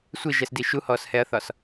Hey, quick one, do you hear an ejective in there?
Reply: no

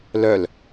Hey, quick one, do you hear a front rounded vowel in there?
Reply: yes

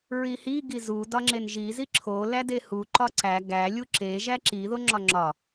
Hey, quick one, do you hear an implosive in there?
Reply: no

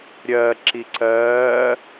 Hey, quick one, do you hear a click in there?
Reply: yes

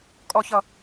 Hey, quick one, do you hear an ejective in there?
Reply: yes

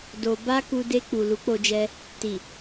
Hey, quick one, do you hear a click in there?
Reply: no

